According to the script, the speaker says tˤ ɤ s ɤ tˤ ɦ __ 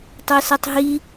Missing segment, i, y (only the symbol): i